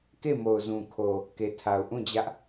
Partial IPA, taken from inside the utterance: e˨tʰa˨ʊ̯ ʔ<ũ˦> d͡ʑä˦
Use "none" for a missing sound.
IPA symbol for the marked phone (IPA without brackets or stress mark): ũ˦˨